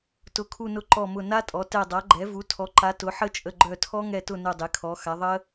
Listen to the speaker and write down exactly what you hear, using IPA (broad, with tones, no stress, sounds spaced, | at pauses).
t ʊ˩˥ kʰ u˧˩ n ʊ˧˩ ǃ ɔ˧˩ m ʊ˧˩ n a˦˥ tʼ ɔ˩˥ t ɛ˧˩ dˤ a˩˥ ɡ͡ǃ ɛ˩˥ v u˩˥ tʰ ɔ˩˥ ǃ a˩˥ t ʊ˩˥ ħ ə˦˥ t͡ʃʼ ə˧˩ ɡ͡ǃ œ˧˩ tʰ ɔ˦˥ ŋ ɛ˧˩ t ʊ˧˩ n u˧˩ dˤ e˩˥ kʰ ɔ˩˥ x a˩˥ ðˤ ə˦˥